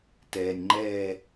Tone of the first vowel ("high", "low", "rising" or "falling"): low